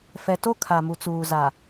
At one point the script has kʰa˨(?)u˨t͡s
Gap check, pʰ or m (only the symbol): m